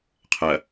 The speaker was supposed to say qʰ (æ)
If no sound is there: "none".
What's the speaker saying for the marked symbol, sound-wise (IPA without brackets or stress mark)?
ɐ